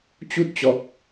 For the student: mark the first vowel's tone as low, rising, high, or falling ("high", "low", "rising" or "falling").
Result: high